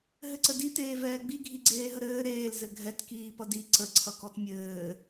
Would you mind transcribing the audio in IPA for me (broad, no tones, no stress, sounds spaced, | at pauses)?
ɦ ɘ ǀ ə d i t eː v ɛː ɡ͡b i ɡʱ i ɡ͡ǀ eː ɦ ə ɾ ɘː ɾ eː l z ɘ ɡʱ ɛ t k iː p ʌ d i ǀ ə ǀʰ ʌ k ɔ t mʲ ɘː